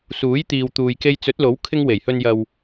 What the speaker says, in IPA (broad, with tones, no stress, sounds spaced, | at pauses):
s uː˨˥ j t̪ iː˨ w t̪ uː˨ j k e˧ j t͡s ɵ˨˥ t̚ l o˨˥ w kʰ ɪ˧ ŋ w e˨˩ j h ɵ˨ n j ɐ˨ w